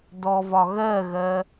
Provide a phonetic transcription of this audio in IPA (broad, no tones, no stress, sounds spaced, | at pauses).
d ɔ v ɒ ɣ ɜ ɣ ɜ